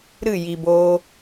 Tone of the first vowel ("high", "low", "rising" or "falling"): falling